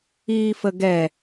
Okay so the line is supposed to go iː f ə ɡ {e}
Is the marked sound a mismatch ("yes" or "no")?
yes